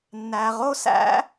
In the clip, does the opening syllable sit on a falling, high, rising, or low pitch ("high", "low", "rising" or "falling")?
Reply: low